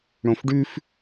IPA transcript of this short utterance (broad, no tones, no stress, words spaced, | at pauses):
ɽõfɖʉf